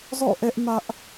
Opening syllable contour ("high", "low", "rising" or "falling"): falling